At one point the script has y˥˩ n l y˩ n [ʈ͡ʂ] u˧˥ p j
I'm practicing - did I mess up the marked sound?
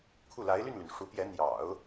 yes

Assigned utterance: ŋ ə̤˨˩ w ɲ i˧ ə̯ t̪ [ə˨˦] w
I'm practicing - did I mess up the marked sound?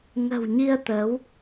no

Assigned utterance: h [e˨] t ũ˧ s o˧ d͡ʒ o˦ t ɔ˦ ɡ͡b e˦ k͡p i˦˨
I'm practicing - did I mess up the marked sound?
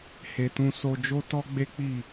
no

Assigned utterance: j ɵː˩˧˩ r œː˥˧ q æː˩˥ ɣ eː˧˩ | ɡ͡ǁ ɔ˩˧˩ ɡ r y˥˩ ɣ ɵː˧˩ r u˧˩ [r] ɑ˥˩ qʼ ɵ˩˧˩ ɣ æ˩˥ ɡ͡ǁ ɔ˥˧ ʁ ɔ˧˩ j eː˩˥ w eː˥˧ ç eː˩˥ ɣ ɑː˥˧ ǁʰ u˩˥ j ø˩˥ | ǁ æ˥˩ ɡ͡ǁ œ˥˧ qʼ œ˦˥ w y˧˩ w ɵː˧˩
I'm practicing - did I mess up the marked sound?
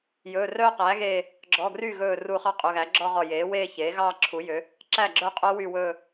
yes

